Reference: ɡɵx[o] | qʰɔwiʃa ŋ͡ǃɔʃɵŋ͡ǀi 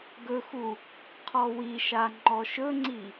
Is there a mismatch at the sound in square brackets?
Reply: yes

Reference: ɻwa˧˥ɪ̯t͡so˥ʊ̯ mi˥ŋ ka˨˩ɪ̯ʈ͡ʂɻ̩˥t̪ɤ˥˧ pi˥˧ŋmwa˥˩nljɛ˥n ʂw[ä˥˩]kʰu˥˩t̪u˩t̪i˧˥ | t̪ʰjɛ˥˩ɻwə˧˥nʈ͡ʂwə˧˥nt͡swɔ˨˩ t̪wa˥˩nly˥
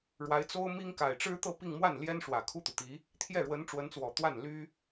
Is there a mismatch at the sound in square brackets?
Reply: yes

